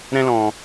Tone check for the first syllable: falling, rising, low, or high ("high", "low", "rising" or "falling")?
high